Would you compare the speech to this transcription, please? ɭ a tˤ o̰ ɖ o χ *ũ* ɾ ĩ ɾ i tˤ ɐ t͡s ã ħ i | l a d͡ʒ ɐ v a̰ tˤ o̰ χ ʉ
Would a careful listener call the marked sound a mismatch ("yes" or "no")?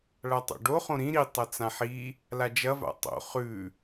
yes